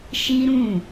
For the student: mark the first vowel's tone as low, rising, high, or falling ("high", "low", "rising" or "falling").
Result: high